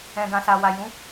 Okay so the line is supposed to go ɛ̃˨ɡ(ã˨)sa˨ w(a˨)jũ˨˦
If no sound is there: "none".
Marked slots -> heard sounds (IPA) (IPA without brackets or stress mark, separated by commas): ã˨, a˨